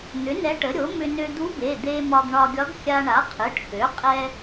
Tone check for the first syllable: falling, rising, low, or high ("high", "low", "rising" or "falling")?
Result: rising